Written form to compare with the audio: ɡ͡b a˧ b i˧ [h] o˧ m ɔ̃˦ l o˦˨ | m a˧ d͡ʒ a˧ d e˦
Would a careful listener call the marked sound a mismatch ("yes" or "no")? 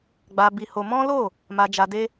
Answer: no